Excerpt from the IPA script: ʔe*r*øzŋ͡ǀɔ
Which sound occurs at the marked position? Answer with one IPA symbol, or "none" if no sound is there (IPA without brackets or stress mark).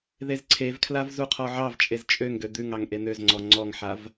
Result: n̪